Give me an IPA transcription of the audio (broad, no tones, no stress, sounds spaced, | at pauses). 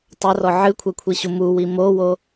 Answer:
tˤ ɐ r ɔ ʕ ɨ kʷʰ ɛ kʷʰ i ɕ u m u w i m o w o